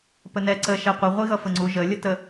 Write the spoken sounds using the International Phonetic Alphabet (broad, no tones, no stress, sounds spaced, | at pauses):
p ə n ɛ ǀ ə ʃ ɛ qʷ i ʁʷ i ɣ ʌ f ə ŋ͡ǀ u ʒ ə lʲ ə t ə